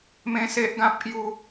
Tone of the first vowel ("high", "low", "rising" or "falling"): high